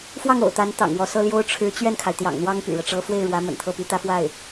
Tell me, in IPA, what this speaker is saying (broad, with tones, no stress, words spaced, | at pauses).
fwɑ˥˩ŋo̰˨˩ʊ̯ t̪a˧˥n t̪ɑ̰˨˩ŋwɔ˧˥sɤ˥ ljo˥ʊ̯ʈ͡ʂʰɻ̩˧˥ t͡ɕɥɛ˥˩nkʰa˩ɪ̯ t̪jɑ̰˨˩ŋn̪wɑ˥ŋ py̰˨˩ɻɤ˦ʈ͡ʂɤ˥ fwe˥˩ɪ̯ɻwä˧˥ mə̰˨˩nt̪ʰɤ˥˩py˥ t̪ä˥fwa˥˩ɪ̯